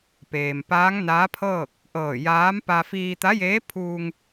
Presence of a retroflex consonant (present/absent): absent